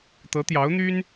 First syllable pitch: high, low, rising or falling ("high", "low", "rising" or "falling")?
rising